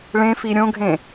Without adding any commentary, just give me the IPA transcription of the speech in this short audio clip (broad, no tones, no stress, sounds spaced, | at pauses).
ɭ ẽ f i ɾʲ õ ɡʱ ẽ